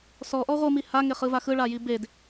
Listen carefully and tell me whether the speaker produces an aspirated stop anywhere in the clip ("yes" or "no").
no